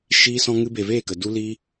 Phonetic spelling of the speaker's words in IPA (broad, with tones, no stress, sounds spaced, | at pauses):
ʃ iː˧ s ɔ̃˧ ŋ ɨ˧ b e˨ v eː˦˨ k ə˨ d u˧ l iː˦